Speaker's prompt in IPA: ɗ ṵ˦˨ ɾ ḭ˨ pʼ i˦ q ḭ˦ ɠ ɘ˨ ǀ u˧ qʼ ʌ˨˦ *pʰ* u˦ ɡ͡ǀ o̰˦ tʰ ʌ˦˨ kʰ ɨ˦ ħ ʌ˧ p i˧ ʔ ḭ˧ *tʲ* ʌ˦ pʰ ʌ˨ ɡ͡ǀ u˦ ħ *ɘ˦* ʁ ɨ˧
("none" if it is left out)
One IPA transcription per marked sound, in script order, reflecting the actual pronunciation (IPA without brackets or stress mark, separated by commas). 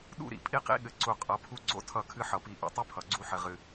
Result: pʰ, tˤ, ɘ˧